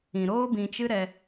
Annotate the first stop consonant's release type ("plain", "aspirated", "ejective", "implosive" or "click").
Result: plain